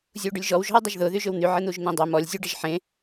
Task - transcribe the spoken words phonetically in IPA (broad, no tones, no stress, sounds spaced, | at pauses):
zʲ u ɖ ʏ lʲ ʒ ɔ w ʒ ɔ̤ w dˤ ɐ ʒ ð ʊ ð y ʒ ʏ w n̪ y ʕ e n̪ u ʒ n̪ ẽ dˤ œ m ɔ lʲ zʲ u ɖ ɐ ʒ ħ ẽ